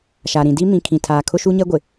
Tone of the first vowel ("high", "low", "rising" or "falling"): low